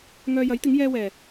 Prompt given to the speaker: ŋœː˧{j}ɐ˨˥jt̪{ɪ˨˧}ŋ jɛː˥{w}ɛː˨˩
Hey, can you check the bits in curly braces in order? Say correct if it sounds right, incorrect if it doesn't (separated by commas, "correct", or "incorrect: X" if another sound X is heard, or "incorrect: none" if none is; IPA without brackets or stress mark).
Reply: correct, incorrect: ɪ˨˥, correct